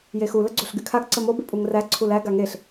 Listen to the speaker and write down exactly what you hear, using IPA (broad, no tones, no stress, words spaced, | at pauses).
jexu ləɡ͡ǀoɬɡykʰaɡ ǀəmo bepʼuŋræ ǀʰulæ ɡaŋeɬ